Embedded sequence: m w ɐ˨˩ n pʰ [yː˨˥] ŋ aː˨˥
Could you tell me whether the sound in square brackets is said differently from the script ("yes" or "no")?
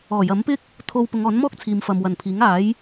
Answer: yes